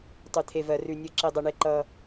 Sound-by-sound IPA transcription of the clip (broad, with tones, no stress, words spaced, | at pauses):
tˤʉ˥t̪ʰe˥vɜ˥rʉ˥ nʲɤ˥ ǁe˥dˤɤ˥ ɳe˥ǃʌː˥